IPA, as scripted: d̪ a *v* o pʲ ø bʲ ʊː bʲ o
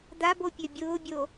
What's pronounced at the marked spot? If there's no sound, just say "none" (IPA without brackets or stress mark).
b